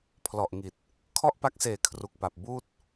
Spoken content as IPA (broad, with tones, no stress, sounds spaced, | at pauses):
pʰ l ɔ˨˩ ʔ ŋ i˨˩ t̚ | kʰ ɔ˥˩ ʔ p a˦˥ k̚ s eː˨˩ kʰ r u˨˩ k̚ p a˨˩ p̚ b uː˥˩ t̚